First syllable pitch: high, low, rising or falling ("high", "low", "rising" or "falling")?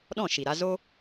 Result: falling